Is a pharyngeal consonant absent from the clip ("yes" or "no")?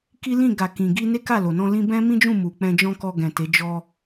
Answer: yes